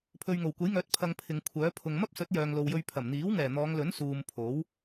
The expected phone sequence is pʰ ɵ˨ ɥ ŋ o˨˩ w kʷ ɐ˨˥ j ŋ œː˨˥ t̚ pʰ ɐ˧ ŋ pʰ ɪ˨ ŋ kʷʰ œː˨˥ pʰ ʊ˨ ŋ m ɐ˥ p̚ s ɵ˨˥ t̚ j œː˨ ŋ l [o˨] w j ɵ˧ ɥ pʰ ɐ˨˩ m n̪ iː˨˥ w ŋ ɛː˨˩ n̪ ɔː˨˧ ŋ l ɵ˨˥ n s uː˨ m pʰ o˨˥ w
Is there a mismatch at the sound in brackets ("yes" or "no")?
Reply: no